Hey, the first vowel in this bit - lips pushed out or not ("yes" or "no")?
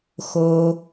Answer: yes